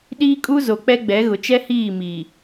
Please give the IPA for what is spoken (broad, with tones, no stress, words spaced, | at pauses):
ɗiː˦kʼu˦ zo˨k͡pɛ˦ɡ͡bɛ˨˦ɣʊ˨ t͡ʃɛ˦hiː˦˨mi˨